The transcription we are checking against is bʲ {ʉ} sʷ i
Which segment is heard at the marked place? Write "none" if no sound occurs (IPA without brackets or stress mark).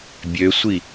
ø